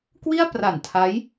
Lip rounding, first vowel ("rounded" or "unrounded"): unrounded